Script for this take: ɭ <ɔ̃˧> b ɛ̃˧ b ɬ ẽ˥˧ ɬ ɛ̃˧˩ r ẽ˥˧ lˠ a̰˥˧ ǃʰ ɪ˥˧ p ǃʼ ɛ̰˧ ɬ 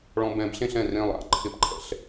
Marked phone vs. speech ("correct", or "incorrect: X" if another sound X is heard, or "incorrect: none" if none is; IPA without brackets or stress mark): correct